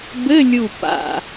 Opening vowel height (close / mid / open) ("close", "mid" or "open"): mid